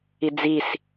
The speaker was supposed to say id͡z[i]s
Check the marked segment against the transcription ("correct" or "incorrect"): correct